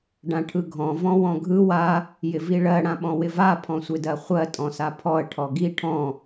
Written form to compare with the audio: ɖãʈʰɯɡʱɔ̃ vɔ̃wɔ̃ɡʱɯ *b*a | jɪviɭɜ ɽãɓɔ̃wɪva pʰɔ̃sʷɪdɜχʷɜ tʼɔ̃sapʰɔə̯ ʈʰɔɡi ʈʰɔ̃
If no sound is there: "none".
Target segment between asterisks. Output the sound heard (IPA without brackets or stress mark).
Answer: w